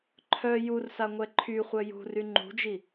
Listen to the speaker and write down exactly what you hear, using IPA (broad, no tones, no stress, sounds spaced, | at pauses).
ǃʰ œ j u r s a ŋʷ ɛ ǃʰ y χʷ œ j ṳ r y ŋ͡ǃ ṳ d͡ʒ i